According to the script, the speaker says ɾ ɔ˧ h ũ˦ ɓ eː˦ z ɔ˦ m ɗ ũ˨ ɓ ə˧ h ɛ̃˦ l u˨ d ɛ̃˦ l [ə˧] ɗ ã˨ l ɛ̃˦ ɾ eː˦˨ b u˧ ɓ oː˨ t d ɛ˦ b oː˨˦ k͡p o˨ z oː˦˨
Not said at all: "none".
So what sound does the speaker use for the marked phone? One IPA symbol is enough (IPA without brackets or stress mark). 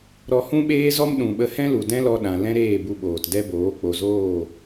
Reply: ɔ˧